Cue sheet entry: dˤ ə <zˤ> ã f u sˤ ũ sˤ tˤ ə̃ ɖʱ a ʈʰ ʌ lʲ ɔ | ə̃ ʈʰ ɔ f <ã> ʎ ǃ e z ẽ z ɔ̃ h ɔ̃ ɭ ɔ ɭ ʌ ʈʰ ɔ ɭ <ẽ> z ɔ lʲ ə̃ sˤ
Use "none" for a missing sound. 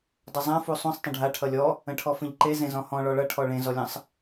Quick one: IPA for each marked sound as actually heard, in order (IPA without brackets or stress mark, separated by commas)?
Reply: zˤ, ə̃, ẽ